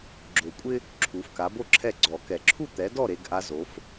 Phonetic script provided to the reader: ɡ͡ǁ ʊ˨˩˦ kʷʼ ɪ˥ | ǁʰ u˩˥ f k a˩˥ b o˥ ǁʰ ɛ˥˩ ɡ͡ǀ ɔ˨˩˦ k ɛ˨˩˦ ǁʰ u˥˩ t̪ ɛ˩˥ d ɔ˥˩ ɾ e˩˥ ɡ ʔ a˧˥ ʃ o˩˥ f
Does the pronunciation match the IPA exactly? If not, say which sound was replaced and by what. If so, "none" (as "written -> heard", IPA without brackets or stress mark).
ʃ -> z